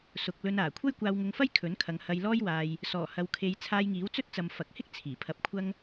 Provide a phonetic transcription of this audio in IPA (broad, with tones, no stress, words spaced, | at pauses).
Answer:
sʊ˧k̚ lɵ˧naː˨˩ kʷʰɐ˥jkʷaː˧wŋʊ˧ŋfɐ˥j kʰɵ˨˥nkʰɐ˨˧ŋ hɐ˧jlɔː˥jwaː˧j | sɔː˨˩hɐ˨wkʰe˨˧j t͡sʰaː˧jŋiː˨˥wt͡sɵ˥t̚t͡sɐ˨m fɐ˨k̚hɪ˥k̚ t͡sʰiː˨˩pʰɐ˧p̚kʷʰɐ˥ŋ